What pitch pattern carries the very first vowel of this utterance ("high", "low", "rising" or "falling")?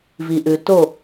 low